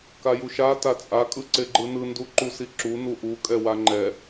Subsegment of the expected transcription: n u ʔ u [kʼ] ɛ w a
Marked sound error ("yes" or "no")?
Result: no